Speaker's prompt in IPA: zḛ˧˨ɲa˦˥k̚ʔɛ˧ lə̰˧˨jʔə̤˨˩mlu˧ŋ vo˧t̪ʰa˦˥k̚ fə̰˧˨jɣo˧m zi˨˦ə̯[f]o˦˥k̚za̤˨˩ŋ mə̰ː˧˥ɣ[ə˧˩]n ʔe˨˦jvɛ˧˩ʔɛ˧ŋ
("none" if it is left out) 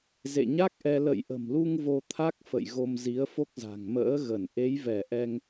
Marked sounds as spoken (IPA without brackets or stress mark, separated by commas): f, ə˧˩